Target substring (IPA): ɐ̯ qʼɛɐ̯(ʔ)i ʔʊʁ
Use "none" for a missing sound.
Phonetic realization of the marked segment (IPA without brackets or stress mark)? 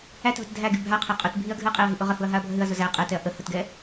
ɦ